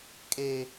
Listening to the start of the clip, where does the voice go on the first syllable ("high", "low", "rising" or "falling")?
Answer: high